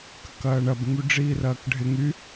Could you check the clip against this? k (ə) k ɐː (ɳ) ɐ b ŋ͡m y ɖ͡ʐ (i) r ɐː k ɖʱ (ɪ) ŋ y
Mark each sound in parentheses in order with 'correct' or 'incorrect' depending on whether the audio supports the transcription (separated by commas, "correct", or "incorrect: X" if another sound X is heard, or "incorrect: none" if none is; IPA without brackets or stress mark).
correct, correct, incorrect: iː, correct